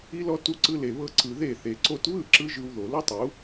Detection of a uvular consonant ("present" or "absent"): absent